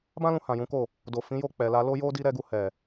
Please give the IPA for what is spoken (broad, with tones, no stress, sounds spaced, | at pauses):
b ã˦ l ũ˧ h ã˨ j ũ˨˦ k o˦˨ | d o˨ f ĩ˨˦ j o˦˨ k͡p ɛ˨ l a˧ l o˦ j o˦ d i˦ ɾ ɛ˦ ɡ u˧ h ɛ˨